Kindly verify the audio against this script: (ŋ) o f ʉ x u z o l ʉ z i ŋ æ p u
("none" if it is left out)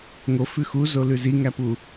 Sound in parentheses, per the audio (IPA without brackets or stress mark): ŋ